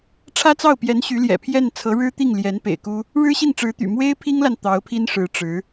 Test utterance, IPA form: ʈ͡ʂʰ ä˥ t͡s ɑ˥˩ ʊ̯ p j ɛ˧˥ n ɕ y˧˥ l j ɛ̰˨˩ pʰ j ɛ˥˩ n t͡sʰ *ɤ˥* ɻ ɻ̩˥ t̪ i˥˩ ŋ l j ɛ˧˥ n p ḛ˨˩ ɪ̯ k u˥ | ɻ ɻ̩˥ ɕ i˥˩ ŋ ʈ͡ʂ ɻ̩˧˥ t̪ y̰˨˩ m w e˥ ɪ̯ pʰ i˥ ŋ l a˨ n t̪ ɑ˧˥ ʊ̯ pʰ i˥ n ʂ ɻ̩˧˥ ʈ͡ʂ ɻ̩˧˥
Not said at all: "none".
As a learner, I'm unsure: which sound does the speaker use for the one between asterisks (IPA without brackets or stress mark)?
ɤ˧˥